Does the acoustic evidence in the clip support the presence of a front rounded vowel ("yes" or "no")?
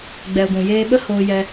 no